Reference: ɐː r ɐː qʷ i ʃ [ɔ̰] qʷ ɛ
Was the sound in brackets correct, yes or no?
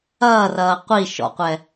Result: yes